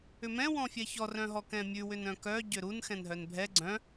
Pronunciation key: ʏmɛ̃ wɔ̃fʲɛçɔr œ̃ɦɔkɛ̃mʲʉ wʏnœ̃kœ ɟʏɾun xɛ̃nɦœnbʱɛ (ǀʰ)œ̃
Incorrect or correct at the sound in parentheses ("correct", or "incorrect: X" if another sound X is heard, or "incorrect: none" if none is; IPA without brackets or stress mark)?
incorrect: ɡ͡ǀ